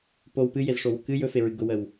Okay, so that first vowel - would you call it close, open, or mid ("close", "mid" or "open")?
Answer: mid